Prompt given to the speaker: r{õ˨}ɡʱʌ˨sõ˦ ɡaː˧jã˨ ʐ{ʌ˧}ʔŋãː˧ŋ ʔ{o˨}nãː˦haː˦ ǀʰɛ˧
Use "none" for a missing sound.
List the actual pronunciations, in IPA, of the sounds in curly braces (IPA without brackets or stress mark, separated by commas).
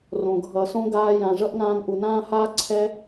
õ˨, ʌ˦, u˨